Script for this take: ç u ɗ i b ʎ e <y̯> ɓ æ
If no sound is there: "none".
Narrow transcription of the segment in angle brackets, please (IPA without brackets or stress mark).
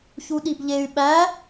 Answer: y̯